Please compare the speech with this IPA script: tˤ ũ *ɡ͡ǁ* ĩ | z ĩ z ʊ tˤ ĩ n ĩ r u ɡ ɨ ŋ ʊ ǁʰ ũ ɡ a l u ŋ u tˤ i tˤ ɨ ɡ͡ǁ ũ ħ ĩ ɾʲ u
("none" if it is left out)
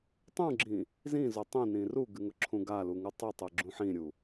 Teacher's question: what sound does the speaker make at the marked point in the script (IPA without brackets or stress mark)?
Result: ɡ͡ǁ